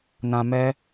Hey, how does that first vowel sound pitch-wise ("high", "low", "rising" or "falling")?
low